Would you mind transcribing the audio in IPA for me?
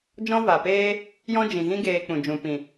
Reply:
d͡ʒɔ̃˦va˨peː˦ | jɔ̃˦d͡ʒĩ˨ɣĩ˦ ɡeː˧k͡pũ˨d͡ʒũ˨ pĩ˨

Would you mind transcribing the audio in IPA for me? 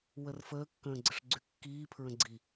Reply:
wərfəː kːə̃ːɡ͡ǀəʂɡ͡ǀykːiː pʰɹə̃ɡ͡ǀi

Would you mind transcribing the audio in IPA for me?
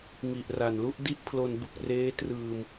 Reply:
ŋi˨˩ʔra˨˩nlu˥˩ʔdi˥˩ʔ pʰlo˧nbu˨˩k̚reː˦˥trɯː˧m

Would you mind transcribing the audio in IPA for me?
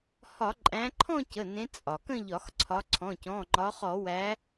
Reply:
hɒ˧˩˧ǃʼæ̃˨˦ǃʰɔ̃˥˧ cə˩˧˩nẽ˨˦ t͡sʼɒ˩kə̃˥˧ʎɒ˧˩˧xǀʰɒ˨˦ ǀʰɔ̃˩˧˩cɔ̃˩˧˩ŋ͡ǃɒ˨˦χɔ˧˩˧ wæ˨˦

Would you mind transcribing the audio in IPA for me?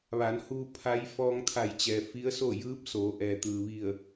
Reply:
ʋa˩˧nhuː˧ pʰa˧˥j fɔː˧ŋt̪ʰa˧˩jt͡ɕɛː˩ fi˧˥ə̯so˥˨ jɯː˧˥p̚soː˩˧ʔɛː˩t̪ɯː˩ ʋi˧˩ə̯

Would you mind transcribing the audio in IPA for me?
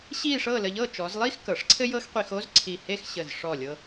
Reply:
ɕi˥˧ʂɤ˥˧ lə˧ʎɤ˥˧ t͡ʃɔ˩˧zlˠi˥x kɤ˩˧ʂǀʰɘ˥jɤ˥x qʷi˧xo˥z ǀʰi˧˩he˥˧x ɕə˧˩zʂɔ˧˩lʲɤ˧

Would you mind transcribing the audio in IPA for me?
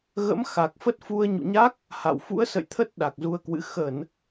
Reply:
ɣə̰˧˥mxa˨˩k̚fə˦˥t̚ fu˧ə̯ɲṵ˧˨ɲa˦˥k̚ | ha̰˧˨w fṵ˧˥ə̯sə̰˧˨jt̪ʰə˦˥t̚ ɗa˨˩k̚zu˧ə̯kwɨ̰˧˥ xə˧˩˨n

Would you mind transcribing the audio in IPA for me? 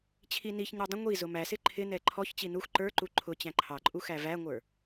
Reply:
t͡ɕʰiniçɲə˞ dˤə̃ ŋʷi zʊmæsɪ ǃʰɪnɛ ǃʰɔçt͡ɕi nux ǃə˞ǃu ǃʰʊ t͡ɕæ̃ǃʰɑǃʼu xævæŋʷə˞

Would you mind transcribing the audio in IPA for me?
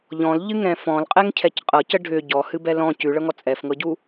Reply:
ʎɔ̃lʎɨŋɛ̃ fɔ̃lqʼɛŋcʰɛc qʼɤcə ɖʱʏ ɟɔhɨbɛ lɔ̃ cʉɭɤŋɔ t͡sʼɛfŋɤɟu

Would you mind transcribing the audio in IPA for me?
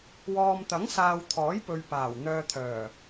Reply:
wɔː˨mt̪ɐ˨˥ŋsaː˨w t̪ʰɔː˨˥jpɵ˨ɥpaː˨˩w n̪œː˨t̪ʰœː˨˩

